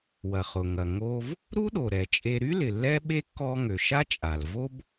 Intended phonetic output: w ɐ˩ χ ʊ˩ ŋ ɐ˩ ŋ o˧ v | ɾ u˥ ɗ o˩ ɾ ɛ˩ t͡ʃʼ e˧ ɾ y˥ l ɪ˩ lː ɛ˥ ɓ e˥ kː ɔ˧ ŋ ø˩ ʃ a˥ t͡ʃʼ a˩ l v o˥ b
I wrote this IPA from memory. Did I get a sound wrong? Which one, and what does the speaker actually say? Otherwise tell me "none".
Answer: none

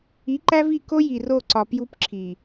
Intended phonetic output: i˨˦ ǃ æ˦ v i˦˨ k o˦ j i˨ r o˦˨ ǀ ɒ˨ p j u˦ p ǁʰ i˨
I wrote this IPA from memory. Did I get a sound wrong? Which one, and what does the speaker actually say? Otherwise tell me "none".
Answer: none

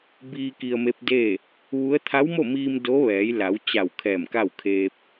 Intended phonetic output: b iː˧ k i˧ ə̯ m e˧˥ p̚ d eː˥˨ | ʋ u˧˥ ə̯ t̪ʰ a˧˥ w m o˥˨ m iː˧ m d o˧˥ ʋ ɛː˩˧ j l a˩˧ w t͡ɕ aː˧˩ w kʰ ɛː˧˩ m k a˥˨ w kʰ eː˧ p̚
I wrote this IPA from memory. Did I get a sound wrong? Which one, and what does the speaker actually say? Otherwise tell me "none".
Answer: aː˧˩ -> a˧˩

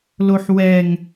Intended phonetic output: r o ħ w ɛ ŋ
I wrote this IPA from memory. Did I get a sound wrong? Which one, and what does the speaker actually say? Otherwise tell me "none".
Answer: r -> l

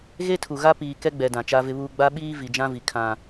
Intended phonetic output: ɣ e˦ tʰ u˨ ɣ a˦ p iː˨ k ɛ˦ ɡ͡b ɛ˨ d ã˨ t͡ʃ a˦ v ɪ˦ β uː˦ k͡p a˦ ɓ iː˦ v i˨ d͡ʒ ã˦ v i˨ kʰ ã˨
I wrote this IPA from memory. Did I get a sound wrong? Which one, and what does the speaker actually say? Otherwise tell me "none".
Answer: k͡p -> ɡ͡b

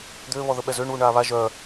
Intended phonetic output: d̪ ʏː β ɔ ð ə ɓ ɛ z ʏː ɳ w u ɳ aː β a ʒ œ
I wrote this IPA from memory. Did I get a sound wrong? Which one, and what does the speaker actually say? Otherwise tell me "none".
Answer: none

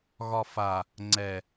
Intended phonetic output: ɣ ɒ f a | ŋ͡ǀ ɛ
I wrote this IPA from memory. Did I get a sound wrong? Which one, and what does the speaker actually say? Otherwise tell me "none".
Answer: none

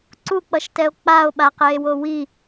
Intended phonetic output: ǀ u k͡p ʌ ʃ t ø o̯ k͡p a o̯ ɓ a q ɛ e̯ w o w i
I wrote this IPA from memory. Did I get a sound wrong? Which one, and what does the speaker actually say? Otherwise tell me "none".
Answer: ø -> ɛ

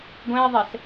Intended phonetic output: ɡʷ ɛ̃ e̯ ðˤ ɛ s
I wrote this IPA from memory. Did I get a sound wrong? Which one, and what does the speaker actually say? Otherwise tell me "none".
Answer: none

